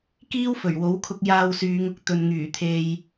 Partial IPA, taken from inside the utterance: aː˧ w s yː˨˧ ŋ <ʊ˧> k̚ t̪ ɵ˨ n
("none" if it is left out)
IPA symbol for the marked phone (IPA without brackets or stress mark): ʊ˨